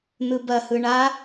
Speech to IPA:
n̪ ɯ b ɐ h ɯ ɳ a

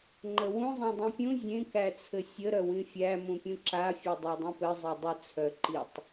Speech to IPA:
ŋ͡ǃ ə w ũ zˤ ẽ dˤ ĩ pʲ ũ zʲ ẽ k æ t͡sʰ ɘ sʲ ə ɾ œ w ĩ fʲ æ m ũ pʲ ũ ǁ a fʲ e dˤ a dˤ ũ p ɘ zˤ e dˤ ə t͡sʰ œ ǃ i tˤ

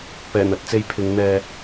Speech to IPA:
p ɛː˨˩ n̪ ɐ˨ t̚ t͡s e˧ j pʰ ɪ˨˧ ŋ n̪ ɛː˧

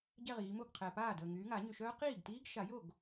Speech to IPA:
ɟ ɛ˥˧ ʁ iː˨˦ m o˥˩ ɡ qʰ ɛː˨ p aː˥˩ d əː˥˧ ŋ yː˨˦ ŋ a˨˩˦ ɲ y˨ ʃ œː˦˥ q iː˥˩ ɡ t iː˦˥ ɡ ʃ a˨˩˦ j o˥˩ ɡ

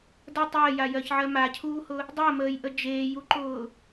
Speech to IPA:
d ə tˤ əː j a j ɜ ç ʕ ɜ m a cʰ uː h ʊ | dˤ ɜ m əː j ʔ ə d͡ʒ eː j u ǃ ʊː

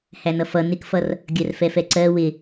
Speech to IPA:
h æ n ʌ f ʌ n ɪ k f ʌ r | ɡʲ ɜ r f ɛ f ɛ ǀ ɜ w ɪ

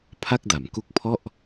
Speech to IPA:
pʰ a˥˩ k̚ d a˩˦ m k u˦˥ k̚ pʰ ɔ˥˩ ʔ

